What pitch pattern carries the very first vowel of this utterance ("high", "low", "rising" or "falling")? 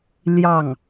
falling